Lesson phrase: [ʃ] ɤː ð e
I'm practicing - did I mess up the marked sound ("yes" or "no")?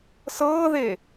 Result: yes